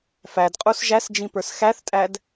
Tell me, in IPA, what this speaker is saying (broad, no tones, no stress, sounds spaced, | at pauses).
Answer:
f æ d qʼ u s ʒ æ s d͡ʒ ĩ p ə˞ s x æ θ tʼ æ d